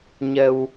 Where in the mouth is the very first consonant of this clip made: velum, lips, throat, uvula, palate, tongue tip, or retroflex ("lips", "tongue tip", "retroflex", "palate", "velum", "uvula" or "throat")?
palate